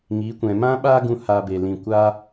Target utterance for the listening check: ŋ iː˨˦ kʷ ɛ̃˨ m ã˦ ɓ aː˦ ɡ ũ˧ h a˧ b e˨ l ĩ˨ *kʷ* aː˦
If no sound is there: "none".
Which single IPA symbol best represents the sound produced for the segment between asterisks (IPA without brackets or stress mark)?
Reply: kʷ